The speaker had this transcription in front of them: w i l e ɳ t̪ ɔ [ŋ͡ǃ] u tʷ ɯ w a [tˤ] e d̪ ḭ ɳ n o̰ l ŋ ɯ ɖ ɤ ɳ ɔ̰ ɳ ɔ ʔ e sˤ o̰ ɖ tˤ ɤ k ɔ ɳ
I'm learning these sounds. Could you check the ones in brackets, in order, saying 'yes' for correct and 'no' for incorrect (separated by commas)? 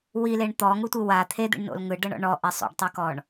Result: no, no